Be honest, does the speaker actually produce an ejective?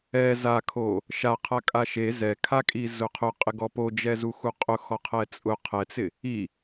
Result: yes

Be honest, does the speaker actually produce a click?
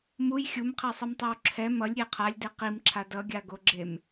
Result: yes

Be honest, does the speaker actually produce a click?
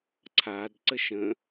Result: yes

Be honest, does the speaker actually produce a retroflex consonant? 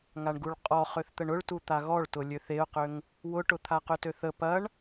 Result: yes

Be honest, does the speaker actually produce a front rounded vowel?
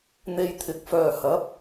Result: yes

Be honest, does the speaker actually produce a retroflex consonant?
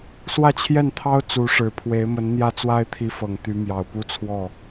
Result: yes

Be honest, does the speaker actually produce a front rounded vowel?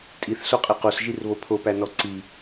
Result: no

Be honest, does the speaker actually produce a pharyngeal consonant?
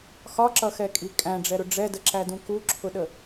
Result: no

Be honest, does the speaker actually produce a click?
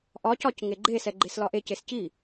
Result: yes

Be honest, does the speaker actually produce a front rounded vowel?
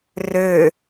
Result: yes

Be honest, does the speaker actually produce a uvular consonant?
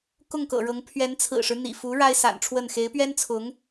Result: no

